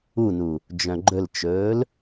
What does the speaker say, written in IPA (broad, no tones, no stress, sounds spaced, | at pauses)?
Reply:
u n u | d͡ʒ œ̃ ɡ͡ǃ ɵ l t͡ʃ ɵː l